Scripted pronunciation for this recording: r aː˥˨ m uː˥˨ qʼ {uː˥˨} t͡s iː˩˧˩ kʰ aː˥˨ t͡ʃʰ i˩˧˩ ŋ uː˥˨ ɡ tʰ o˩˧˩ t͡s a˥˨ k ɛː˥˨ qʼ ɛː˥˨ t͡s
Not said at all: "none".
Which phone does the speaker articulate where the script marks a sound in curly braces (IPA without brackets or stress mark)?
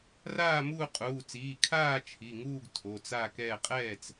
uː˩˧˩